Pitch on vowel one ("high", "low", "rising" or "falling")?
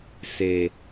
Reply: low